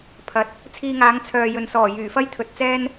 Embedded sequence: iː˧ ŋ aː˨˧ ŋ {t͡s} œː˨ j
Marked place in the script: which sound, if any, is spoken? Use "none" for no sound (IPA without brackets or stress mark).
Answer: t͡sʰ